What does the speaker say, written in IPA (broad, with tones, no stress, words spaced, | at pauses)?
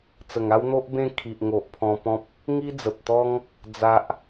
t͡sə˨˩ŋa˦wn̪o˦ʔ bẽ˥˧ kʰi˨ʔŋo˨ʔpʰɔ̃˧pɔ̃˦p̚ | ŋi˦d͡zə˨p̚t̪ɔ˦ŋ | d͡za˦ʔ